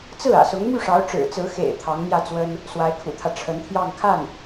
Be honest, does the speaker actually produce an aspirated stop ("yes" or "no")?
yes